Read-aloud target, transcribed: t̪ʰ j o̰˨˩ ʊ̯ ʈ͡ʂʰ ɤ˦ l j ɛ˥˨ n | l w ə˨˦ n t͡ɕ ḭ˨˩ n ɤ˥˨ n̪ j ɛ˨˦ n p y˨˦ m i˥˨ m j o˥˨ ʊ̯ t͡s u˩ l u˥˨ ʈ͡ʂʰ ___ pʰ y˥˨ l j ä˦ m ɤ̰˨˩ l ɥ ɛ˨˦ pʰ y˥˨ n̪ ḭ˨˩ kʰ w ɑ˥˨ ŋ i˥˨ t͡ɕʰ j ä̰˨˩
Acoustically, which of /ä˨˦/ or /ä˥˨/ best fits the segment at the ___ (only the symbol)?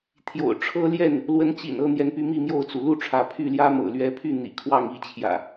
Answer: ä˨˦